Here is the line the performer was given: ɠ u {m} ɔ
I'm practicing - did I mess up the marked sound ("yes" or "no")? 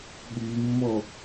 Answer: yes